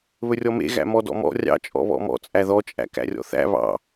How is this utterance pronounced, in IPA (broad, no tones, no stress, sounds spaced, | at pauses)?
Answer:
β ɵ rʲ ɔ m ḛ ɣ æ̰ m ɔ d ɔ̰ m ɔ̰ rʲ ɑ̰ t͡ʃʼ ɔ̰ β ɔ̰ m ɔ̰ t͡sʼ æ ð ɔ t͡ʃʼ æ̰ k æ̰ rʲ ɔ̰ θ æ̰ β ɑ̰